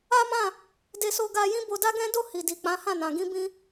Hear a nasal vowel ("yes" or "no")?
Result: yes